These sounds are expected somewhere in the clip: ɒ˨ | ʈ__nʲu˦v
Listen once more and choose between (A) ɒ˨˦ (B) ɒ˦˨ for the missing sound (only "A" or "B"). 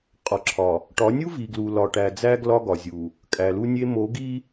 A